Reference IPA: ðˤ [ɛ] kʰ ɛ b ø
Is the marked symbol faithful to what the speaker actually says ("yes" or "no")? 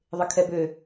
no